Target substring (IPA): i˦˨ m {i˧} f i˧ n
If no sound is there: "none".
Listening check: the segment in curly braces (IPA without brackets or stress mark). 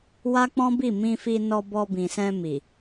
ĩ˧